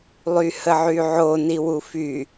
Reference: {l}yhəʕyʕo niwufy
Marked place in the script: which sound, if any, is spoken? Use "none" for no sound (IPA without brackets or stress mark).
lˠ